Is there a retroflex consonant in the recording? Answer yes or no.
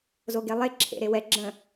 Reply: no